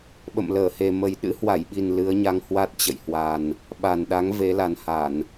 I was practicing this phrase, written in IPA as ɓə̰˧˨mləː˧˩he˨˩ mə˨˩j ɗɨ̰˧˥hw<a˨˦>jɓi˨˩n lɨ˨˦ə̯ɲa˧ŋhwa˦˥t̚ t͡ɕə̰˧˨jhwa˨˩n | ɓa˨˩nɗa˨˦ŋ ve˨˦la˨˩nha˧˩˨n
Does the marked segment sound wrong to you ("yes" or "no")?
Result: yes